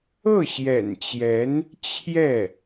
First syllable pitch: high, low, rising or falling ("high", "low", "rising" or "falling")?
falling